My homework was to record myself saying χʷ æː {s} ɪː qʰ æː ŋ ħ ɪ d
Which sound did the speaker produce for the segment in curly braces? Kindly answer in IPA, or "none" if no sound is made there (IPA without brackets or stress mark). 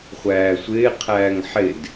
sʷ